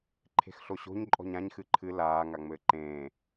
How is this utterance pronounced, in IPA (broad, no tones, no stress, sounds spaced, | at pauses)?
ǃʰ e̤ x ɬ o ɕ o̤ ɲ ǃʼ ɔ̤ ɲ ã ɲ x ɨ ǃʰ ɨ l aː ŋ a ŋ͡m ɘː ǃ ẽː